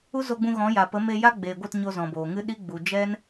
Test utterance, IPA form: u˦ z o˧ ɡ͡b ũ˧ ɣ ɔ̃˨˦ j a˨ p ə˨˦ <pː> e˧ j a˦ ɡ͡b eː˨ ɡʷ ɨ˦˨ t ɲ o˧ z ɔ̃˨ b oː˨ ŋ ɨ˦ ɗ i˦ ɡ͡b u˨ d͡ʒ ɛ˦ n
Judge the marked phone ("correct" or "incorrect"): incorrect